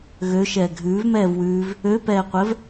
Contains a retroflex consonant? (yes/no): no